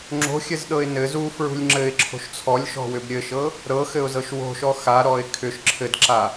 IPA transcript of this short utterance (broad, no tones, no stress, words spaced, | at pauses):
ŋ͡ǁo̤xʲɘzɗɤɪ̯ nɘ zufɹṳlʲ ŋ͡ǁɘɪ̯ǁʰo̤ʃ t͡sʰɔlʲʃɔ̤wʏb ɾʲɘʃɤ | ɾɤxɘʊ̯zɤʃ wo̤ʃɔ xaɾɔɪ̯ kʰʏʃ ǁʰɘdǁa